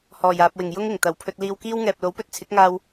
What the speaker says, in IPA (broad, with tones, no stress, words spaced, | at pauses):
hɔː˨˩jaː˨p̚wɪ˨˩ŋ jʊ˥ŋɪ˨˩ŋ t̪ɐ˨˩wpʰɵ˧t̚ liː˧wkiː˥wŋɛː˨p̚ lo˨˥wpɵ˧t̚t͡sʰɪ˨˥k̚ŋaː˧w